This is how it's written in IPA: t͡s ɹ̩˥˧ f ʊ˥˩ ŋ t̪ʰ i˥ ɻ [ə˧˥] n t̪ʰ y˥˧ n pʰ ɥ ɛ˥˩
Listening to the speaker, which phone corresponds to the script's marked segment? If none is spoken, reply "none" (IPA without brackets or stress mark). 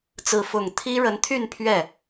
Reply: ə˧˥